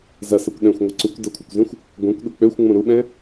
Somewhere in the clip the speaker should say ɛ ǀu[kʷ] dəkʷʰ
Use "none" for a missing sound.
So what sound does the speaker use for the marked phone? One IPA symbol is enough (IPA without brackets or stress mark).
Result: kʷ